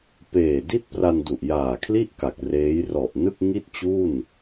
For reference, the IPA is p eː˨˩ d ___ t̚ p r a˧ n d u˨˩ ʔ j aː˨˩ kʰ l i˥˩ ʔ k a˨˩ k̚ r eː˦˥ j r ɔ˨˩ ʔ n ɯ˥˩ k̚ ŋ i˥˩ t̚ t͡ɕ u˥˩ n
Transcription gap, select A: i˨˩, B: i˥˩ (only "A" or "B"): B